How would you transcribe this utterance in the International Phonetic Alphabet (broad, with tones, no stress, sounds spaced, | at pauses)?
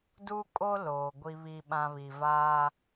d u˦ kʼ o˦ l oː˨ ɡʷ i˦ β i˦ ɓ ã˦ β i˨ v aː˦